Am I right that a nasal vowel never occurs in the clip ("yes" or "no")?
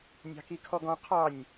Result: no